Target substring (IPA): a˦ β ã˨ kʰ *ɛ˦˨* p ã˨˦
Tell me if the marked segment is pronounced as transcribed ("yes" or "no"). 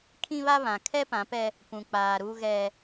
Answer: no